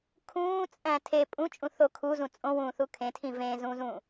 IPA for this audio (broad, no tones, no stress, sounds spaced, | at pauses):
kʰ ũː t͡sʼ æ̃ tʰ e pʼ ũ t͡ʃʼ ũ θ o kʰ u z ũ t͡sʼ õ w ũː θ u kʰ ẽ tʰ ĩ v ẽː z ũː z ũː